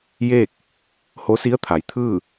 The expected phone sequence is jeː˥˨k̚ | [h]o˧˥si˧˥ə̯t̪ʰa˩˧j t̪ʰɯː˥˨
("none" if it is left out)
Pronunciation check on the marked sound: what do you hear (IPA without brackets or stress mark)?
h